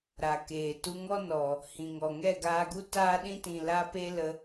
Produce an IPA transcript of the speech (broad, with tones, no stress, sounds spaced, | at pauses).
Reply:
ɾ a˨ k eː˨ t u˧ ŋ ɔ˦ n ɔ˨ | h ĩ˨ ŋ ɔ˨ ŋ ɛ˦˨ ɡ aː˧ ɡ u˦ t aː˦ ɗ ĩ˦ t ĩ˨ l a˦ p e˦ l ə˧